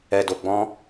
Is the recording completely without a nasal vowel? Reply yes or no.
no